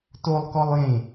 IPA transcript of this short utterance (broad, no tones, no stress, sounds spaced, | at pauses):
t o lˠ k ɔ lˠ j ẽ